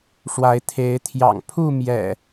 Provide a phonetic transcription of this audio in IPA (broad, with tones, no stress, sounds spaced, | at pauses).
ʂ w a˨˦ ɪ̯ t̪ʰ e˨˦ ɪ̯ t̪ʰ j ɑ̰˨˩ ŋ pʰ u˥˨ m j ɛ̰˨˩